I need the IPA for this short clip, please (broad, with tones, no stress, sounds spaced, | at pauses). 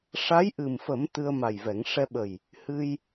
ʂ a˧˥ j ʔ ɨ˨˩ m f ə˨˩˦ m t̪ ɨ˧ ə̯ m a˨˩ j v ɛ˨˩˦ ŋ ʂ ɛ˧ ɓ ə˨˩ j | h ɨ˧ j